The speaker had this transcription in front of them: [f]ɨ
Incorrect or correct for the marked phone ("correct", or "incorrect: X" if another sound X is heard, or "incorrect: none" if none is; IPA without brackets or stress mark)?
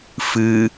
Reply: correct